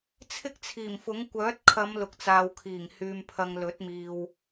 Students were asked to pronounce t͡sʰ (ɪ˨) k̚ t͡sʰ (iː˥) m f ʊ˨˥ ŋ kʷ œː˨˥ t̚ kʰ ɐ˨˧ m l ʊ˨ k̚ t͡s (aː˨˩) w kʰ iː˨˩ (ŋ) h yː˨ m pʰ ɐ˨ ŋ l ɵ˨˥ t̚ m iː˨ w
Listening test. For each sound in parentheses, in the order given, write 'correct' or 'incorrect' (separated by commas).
incorrect, incorrect, incorrect, correct